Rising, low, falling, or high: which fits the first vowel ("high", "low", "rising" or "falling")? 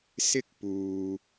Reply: high